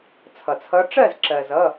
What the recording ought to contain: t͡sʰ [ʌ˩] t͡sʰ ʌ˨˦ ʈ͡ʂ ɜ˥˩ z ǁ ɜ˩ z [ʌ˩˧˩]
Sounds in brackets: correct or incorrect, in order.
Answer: correct, correct

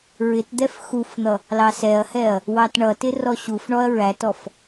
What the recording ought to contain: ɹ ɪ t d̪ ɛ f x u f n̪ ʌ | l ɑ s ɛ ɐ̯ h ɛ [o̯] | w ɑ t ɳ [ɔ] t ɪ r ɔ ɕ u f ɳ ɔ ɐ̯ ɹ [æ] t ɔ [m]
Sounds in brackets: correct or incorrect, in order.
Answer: incorrect: ɐ̯, incorrect: ʌ, correct, incorrect: f

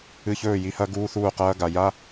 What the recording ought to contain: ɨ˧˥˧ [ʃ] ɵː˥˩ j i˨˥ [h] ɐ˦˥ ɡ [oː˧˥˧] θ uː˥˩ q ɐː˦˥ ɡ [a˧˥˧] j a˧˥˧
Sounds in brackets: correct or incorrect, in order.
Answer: incorrect: ç, correct, incorrect: uː˧˥˧, incorrect: a˨

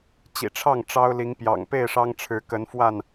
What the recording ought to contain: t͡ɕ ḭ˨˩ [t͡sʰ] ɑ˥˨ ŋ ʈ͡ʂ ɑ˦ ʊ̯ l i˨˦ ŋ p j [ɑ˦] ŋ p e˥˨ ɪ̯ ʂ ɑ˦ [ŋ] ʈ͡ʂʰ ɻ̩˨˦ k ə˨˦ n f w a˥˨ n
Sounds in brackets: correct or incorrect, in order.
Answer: incorrect: ʈ͡ʂʰ, incorrect: ɑ̰˨˩, correct

